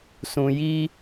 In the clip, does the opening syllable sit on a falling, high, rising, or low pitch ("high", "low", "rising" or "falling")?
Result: low